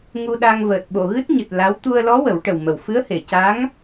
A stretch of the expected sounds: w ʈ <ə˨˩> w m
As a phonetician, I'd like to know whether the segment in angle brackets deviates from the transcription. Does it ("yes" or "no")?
no